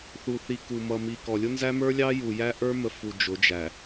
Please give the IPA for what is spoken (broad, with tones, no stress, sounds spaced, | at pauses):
θ u˨ θ i˨ k u˨ m ʌ˨ m i˨ k ɔ˨ lʲ ʊ˦ n z æ˦ m ə˞˦ lʲ ɑ˦ j u˨ j æ˦ ʔ ə˞˦ m ə˨ f u˨ d͡ʒ ʊ˨˦ d͡ʒ æ˨